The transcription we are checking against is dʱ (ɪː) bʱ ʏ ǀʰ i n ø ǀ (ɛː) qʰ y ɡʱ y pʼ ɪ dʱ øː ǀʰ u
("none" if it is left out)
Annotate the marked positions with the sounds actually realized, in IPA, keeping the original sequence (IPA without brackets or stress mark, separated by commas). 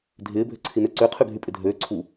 ɪː, ʏː